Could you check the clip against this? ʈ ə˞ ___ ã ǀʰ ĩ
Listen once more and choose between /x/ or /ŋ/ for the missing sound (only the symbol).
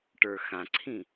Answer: x